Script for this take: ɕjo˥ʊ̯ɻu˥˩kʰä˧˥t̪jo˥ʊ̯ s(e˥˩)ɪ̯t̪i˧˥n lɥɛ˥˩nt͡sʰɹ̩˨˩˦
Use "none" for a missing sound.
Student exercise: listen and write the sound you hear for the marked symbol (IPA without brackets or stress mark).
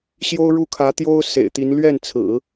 ḛ˨˩